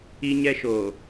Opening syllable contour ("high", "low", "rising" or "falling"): high